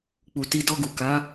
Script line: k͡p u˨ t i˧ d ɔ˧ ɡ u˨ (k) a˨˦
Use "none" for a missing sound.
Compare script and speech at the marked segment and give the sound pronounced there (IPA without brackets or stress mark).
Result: k